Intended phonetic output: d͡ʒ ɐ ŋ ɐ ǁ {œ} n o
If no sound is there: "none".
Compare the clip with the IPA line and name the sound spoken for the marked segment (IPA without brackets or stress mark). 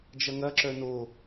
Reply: œ